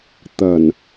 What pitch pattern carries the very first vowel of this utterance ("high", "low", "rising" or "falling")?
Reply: low